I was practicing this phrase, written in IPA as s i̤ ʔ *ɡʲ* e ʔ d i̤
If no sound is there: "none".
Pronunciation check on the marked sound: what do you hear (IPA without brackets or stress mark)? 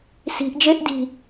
d͡ʒ